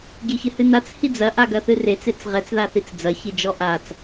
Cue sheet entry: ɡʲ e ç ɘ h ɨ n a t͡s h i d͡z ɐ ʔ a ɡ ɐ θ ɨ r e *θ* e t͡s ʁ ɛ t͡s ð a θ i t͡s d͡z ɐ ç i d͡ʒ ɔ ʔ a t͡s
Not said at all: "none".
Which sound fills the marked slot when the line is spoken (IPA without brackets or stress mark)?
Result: t͡s